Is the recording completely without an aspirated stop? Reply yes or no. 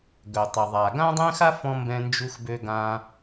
yes